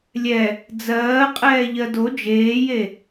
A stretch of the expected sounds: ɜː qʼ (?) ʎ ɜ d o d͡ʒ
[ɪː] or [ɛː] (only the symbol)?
ɛː